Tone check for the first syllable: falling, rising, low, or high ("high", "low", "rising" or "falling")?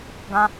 high